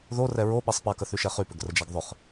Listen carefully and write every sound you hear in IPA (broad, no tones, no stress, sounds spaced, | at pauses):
ð o r ɛ ɹ o ɓ e sˤ p a k ə θ y ʃ ɛ χ y p ʏ ɡ r ə d͡ʒ a ɡ ðˤ ʏ χ